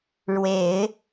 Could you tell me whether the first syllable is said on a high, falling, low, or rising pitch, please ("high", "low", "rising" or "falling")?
low